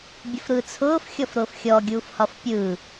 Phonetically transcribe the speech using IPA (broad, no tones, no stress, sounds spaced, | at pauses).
bʲ ʊ f ɾ ɯː t͡sʰ ʊː f xʲ ɔ f ɾ ʊː f xʲ ɔ ɡʲ uː f h ɒ f pʲ ɯː